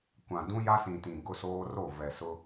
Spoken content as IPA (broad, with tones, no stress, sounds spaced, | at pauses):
kʷ ã˨ d ũ˦ j a˦ s ĩ˨ t ĩ˨ ɡ ʊ˦ s oː˦ r o˦˨ v ɛ˨ s ʊ˦